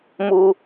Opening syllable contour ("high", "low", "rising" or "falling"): high